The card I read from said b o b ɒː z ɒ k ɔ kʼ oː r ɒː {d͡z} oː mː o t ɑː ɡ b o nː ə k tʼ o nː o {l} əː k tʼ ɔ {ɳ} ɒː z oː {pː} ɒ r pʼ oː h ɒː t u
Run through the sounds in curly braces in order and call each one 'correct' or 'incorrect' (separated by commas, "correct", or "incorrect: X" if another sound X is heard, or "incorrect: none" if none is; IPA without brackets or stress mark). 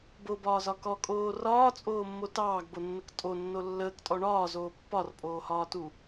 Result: incorrect: t͡sʼ, incorrect: lː, correct, correct